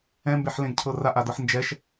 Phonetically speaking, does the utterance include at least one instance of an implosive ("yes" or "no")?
no